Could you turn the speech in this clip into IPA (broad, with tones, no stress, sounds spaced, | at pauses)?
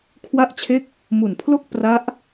kʰ w a˥˩ ʔ t͡ɕʰ e˥˩ k̚ | m u˨˩ n pʰ l o˥˩ k̚ p r a˦˥ ʔ